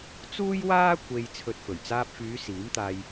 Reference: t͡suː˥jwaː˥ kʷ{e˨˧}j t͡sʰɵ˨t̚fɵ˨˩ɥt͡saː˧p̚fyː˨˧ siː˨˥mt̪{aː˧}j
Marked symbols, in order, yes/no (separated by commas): no, yes